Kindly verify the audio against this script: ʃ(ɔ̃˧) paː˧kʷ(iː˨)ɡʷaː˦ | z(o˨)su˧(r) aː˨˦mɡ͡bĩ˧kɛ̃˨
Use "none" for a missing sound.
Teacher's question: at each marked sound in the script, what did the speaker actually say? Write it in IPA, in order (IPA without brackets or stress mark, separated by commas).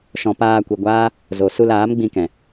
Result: ɔ̃˧, i˨, o˨, l